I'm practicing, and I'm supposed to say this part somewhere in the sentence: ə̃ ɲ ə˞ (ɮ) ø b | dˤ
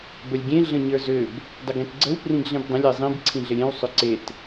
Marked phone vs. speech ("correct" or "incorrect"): incorrect